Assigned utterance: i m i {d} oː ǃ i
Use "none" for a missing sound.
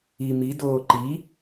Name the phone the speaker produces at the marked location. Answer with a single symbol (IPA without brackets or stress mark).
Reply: d